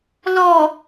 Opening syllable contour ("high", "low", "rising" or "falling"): low